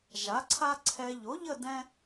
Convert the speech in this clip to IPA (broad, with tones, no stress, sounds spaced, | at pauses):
ʒ a˨˥ ǀʰ a˥ ǀʰ ɛ˧ ʎ o˨˥ ʎ ə˥˧ d ɛ̃˥